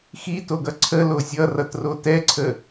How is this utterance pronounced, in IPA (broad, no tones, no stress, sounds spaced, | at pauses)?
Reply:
x i t o ɡ ʌ ǀʰ ə l o zʲ ʌ r ʌ t r o t ɛ ǀʰ ə